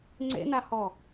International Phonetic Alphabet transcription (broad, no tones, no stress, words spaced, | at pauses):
ŋ͡ǀḛnahɔ